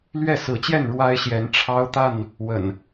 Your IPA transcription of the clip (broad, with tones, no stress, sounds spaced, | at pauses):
l ɥ ɛ˥˨ s ɹ̩˨˦ t͡ɕ j ɛ˥˨ n ɻ w a˦ ɪ̯ ɕ j ɛ˨˦ n ʈ͡ʂʰ ɑ˦ ʊ̯ t̪ a˥˨ n | w ə̰˨˩ n